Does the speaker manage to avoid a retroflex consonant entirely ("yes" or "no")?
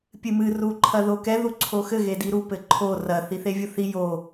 yes